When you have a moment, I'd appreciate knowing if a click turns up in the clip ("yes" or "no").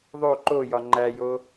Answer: yes